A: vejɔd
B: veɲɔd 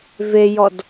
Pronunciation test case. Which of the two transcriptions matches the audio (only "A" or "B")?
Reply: A